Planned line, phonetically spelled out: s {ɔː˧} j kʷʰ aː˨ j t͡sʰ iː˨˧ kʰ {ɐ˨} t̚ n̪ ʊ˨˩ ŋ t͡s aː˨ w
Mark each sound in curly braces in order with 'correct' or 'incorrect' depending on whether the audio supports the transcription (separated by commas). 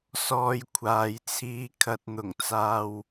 correct, correct